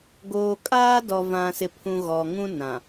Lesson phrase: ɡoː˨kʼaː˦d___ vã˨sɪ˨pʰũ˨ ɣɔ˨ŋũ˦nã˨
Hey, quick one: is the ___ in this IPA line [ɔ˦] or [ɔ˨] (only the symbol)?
ɔ˨